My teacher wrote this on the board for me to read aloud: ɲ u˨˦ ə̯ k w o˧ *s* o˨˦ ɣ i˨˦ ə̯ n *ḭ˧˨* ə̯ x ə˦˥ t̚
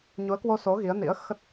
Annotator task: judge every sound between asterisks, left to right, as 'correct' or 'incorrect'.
correct, incorrect: ḭ˧˥

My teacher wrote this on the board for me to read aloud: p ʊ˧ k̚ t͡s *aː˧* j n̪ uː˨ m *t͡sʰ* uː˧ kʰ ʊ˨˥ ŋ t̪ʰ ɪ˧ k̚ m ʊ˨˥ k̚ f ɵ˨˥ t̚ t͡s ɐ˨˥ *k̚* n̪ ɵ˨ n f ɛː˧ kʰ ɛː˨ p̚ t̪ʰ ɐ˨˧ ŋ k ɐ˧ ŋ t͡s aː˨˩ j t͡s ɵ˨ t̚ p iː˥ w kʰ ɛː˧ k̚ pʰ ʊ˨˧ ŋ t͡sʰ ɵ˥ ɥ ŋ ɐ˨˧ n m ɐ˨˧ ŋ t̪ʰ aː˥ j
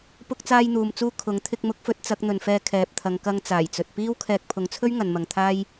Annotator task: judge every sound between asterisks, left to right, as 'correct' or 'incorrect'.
correct, incorrect: t͡s, correct

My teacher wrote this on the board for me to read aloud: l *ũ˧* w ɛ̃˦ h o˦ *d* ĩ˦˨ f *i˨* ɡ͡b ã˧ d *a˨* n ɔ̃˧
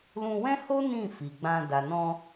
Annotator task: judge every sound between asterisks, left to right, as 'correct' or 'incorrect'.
correct, incorrect: n, correct, correct

